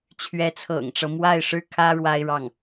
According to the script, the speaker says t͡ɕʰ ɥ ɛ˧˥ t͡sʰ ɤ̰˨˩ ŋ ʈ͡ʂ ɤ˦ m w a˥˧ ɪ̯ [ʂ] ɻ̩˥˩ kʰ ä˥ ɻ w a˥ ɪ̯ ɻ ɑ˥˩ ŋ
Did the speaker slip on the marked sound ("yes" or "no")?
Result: no